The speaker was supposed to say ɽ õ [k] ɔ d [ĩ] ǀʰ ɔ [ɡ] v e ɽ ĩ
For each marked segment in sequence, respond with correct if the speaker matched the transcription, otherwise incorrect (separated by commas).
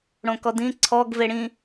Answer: correct, correct, correct